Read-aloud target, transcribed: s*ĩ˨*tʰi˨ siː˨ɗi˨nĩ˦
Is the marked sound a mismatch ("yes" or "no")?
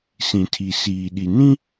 no